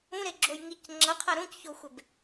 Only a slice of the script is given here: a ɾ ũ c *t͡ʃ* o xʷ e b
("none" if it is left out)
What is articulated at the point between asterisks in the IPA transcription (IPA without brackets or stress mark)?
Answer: ç